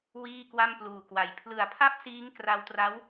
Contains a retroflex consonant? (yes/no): no